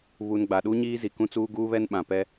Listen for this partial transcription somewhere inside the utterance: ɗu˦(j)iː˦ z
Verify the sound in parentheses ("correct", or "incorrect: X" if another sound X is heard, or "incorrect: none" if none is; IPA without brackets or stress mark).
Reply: incorrect: ɲ